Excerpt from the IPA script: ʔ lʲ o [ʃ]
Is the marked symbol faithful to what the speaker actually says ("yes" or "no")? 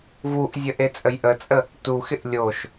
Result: yes